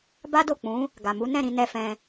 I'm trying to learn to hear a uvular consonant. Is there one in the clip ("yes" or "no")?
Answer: no